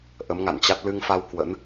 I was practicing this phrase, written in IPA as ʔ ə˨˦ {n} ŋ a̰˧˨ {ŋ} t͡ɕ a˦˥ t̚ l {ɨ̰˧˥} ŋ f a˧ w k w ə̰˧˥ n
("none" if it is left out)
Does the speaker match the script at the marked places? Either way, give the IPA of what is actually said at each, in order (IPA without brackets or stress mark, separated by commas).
m, n, ɨ˧